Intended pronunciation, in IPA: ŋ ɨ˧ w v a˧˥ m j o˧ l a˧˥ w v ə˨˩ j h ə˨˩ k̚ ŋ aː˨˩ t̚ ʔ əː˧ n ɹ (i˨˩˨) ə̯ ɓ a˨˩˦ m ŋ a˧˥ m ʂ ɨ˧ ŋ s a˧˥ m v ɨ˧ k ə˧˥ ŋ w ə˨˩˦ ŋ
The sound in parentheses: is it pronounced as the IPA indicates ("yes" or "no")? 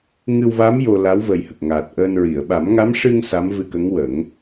yes